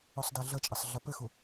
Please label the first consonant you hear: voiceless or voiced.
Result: voiceless